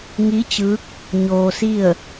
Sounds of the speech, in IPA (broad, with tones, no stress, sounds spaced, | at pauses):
ŋ i˧˥ t͡ɕ ɯː˧˥ k̚ | ɲ oː˧ s i˥˨ ə̯